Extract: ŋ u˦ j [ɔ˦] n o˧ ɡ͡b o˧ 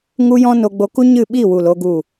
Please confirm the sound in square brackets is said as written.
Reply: no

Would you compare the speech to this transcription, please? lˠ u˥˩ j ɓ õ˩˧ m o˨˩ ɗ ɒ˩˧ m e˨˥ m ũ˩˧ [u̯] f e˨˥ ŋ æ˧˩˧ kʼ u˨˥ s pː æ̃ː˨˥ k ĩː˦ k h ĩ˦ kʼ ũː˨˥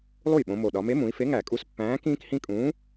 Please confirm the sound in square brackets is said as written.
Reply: no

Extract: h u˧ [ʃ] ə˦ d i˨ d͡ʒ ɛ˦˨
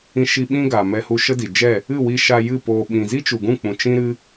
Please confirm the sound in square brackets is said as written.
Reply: yes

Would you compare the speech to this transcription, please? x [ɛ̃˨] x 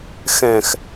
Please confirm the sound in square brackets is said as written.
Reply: yes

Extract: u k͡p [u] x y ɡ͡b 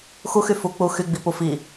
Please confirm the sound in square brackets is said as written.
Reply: yes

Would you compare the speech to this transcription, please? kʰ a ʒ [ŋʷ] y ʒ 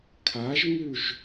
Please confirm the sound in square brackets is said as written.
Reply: no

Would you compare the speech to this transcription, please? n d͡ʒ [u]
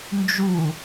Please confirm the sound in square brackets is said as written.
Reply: yes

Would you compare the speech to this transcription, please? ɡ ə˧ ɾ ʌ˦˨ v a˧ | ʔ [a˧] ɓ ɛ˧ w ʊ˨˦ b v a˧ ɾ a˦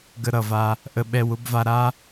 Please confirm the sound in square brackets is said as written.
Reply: no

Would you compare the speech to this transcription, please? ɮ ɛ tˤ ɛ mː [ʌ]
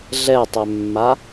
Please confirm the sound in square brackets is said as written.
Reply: no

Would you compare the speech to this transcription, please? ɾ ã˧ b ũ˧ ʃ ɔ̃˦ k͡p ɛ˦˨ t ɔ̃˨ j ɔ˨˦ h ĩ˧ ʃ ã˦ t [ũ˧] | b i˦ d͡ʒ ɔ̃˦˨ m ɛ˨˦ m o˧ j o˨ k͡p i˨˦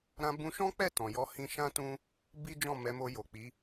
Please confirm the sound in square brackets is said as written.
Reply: no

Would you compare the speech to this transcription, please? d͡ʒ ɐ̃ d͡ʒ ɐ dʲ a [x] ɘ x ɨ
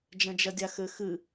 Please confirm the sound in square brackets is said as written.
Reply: yes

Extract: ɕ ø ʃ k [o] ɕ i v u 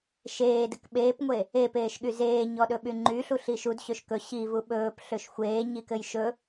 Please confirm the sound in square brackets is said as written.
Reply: no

